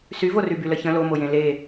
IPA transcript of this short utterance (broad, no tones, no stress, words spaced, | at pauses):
syvory byləçə̃ lomojẽ le